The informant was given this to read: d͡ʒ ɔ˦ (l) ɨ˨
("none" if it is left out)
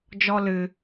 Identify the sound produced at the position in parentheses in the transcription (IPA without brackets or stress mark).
l